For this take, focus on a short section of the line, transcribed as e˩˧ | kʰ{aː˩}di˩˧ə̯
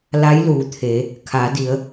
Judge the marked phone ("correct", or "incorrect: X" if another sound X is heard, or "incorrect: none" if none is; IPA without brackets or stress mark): incorrect: aː˩˧